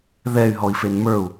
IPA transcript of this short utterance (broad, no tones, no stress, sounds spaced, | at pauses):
ð ɛ y̯ ɦ ɔ i̯ f e n m ə˞ u̯